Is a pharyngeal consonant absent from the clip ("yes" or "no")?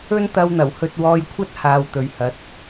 yes